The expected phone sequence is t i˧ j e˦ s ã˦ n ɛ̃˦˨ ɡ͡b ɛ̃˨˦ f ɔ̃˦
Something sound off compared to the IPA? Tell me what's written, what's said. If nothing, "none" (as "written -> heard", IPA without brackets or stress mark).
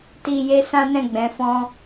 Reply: none